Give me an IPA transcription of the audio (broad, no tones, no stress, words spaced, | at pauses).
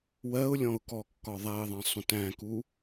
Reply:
wɜʊ̯lʲɔ̃ʊ̯kɔkːɒ ðˤæɪ̯ðˤɛ̃sˤũt æ̃ku